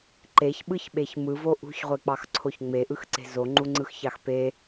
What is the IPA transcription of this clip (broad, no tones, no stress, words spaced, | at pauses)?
ǃeçɓɯçɓeç mɯvo ʔṳçʁʷek͡pɑxǀʰoç ŋ͡meʔɯxǀe̤ zoŋ͡ǃuŋ͡ǀɯxçɑx pe